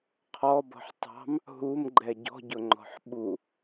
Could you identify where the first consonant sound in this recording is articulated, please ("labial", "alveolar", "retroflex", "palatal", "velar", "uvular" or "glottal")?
uvular